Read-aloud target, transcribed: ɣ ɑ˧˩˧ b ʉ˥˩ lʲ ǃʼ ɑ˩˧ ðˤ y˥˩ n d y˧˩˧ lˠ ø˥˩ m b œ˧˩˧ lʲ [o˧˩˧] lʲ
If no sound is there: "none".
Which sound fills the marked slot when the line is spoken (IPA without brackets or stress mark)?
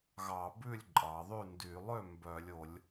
o˧˩˧